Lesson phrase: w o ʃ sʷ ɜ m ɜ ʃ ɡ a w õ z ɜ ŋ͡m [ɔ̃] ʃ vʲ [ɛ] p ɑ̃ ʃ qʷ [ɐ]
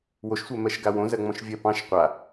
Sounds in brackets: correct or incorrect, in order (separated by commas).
correct, incorrect, incorrect